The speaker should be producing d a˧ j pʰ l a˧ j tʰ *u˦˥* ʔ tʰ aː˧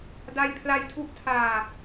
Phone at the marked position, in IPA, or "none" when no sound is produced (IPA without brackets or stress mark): u˦˥